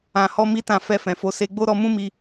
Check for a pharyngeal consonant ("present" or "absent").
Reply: absent